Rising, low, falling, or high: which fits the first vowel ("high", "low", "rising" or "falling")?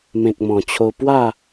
low